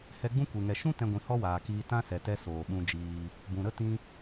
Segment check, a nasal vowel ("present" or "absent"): present